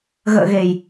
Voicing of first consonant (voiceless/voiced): voiced